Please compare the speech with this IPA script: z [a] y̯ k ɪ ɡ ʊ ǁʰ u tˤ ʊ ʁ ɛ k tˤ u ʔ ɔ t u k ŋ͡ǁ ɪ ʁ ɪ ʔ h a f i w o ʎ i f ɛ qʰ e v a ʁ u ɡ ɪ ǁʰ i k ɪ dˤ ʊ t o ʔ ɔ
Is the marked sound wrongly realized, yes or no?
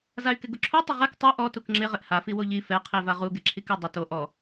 no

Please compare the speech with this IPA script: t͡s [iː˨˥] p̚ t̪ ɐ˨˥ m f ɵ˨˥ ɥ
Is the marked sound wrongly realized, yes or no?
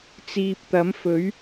yes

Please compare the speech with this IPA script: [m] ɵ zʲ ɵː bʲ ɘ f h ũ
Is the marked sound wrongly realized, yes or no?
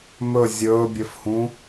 no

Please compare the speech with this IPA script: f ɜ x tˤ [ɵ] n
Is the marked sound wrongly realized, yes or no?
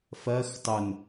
no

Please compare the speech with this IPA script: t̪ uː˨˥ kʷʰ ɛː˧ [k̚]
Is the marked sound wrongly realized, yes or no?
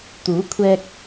no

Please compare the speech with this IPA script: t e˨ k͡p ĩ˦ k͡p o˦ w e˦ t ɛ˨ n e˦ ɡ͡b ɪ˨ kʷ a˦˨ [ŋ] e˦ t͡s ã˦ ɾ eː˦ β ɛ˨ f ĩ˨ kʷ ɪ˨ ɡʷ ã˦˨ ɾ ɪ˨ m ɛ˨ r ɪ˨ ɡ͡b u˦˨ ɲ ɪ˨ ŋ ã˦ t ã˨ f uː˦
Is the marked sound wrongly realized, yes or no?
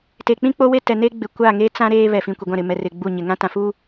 no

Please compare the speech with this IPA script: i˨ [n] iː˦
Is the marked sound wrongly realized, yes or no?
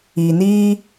no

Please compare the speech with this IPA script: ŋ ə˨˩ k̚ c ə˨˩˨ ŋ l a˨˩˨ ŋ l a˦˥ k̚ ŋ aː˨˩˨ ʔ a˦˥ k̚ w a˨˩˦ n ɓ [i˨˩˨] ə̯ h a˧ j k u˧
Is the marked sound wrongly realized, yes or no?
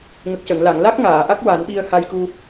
yes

